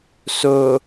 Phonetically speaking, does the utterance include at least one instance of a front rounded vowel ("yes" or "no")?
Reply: no